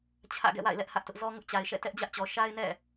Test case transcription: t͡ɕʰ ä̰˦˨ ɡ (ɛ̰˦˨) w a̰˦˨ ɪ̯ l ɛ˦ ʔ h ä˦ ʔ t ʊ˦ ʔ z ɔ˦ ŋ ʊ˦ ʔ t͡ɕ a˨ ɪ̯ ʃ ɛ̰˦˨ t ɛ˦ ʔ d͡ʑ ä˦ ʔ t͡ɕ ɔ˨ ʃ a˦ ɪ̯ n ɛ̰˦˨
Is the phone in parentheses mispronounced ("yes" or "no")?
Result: no